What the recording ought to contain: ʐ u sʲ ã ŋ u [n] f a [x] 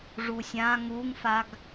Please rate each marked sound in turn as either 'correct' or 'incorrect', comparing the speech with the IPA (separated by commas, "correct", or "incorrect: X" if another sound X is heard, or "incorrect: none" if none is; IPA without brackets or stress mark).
incorrect: ŋ, incorrect: ɡ